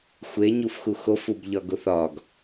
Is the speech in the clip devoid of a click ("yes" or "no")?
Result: yes